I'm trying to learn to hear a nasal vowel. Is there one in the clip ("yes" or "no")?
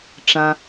yes